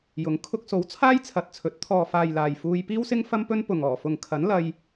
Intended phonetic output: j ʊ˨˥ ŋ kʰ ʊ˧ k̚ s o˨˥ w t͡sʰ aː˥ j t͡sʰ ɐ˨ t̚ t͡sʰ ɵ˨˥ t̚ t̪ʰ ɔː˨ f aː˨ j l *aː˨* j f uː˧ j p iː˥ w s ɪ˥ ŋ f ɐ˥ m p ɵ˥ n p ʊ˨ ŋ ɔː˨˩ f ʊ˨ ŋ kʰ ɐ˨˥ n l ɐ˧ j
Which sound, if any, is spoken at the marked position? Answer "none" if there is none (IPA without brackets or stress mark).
aː˨